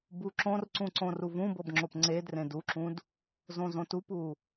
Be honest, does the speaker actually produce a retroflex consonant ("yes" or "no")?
no